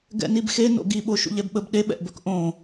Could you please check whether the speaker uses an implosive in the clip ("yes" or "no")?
yes